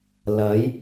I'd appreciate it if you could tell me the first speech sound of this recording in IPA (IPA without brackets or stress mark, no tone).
l